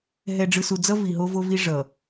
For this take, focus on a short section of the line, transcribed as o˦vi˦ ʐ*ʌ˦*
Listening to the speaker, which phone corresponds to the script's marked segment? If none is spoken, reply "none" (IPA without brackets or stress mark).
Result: ʌ˨